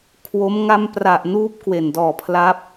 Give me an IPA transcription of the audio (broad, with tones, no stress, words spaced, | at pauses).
kʰwo˦˥m ŋa˥˩m pra˨˩ʔ nuː˦˥p̚kwe˨˩ndɔː˨˩ pʰla˦˥p̚